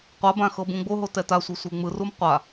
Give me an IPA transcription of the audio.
qʷ a b ã x ɤ b ũ ɡ͡b o ɦ o t ɛ t a sʷ i sʷ e ŋ͡m ɯ r u m qʷ a

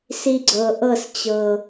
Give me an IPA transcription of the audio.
s i˥ ɡ͡ǀ ɤ˧ ʔ ɤ˥˧ s t͡ɕ ɤ˧

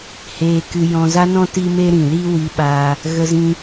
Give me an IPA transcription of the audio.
h eː˧ k ɨ˧ j ɔ̃˧ z a˦ n ɔ̃˦ t i˦ m e˦ ɾ ĩ˨ l i˦ w i˧ ɓ aː˧ | ɣ ə˧ z ĩ˧

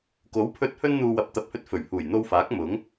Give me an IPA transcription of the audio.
k o˨˥ w pʰ ɵ˧ t̚ h ɵ˥ n n̪ uː˧ w ɐ˨˥ p̚ t̪ ɐ˨ p̚ h ɵ˧ t̚ f ɵ˨˩ ɥ h uː˨˩ j n̪ o˧ w f aː˨˥ k̚ m ʊ˨˥ ŋ

